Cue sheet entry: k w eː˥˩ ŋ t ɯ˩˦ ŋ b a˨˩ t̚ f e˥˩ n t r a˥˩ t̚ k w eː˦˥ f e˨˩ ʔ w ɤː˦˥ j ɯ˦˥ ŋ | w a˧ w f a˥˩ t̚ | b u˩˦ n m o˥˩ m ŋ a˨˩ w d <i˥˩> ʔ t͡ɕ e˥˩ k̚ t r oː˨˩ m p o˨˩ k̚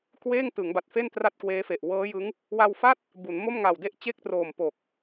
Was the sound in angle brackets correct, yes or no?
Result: no